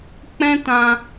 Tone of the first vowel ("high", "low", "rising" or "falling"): high